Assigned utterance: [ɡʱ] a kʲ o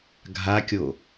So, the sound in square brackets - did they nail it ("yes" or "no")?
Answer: yes